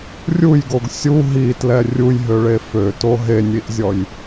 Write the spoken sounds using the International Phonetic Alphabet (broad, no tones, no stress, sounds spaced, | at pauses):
rʲ u j ɡ o ɡ sʲ u ɦ i t l ɛ rʲ u j ɦ ø ɭ e f ø t o ɦ e nʲ i ʔ zʲ ɔ j